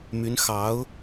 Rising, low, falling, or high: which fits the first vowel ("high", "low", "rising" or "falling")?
rising